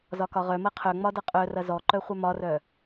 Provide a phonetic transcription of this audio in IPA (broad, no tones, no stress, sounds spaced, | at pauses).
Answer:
z ɒ k ɒ ʁ œ m ɐ qʰ œ ŋ͡m ɒ d ʌ qʼ œ r ɐ z ɔ ǃ œ χʷ œ m ɒ r œ